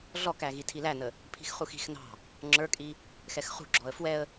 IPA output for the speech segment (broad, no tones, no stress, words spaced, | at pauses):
ɮɔkæɣi tʰilænə | pʰi̤xχuxi̤x nɑ̤ | ŋ͡ǁə˞kʼi | xɛxχṳ ɡ͡ǁɔə̯fwɛə̯